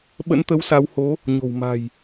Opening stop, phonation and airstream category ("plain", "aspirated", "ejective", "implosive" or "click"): implosive